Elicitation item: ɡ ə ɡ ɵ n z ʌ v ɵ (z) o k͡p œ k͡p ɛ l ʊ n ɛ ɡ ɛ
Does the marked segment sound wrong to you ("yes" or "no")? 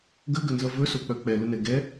yes